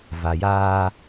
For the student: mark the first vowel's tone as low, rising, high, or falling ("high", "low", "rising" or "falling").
low